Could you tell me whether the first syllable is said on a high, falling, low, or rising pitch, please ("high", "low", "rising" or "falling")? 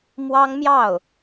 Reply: high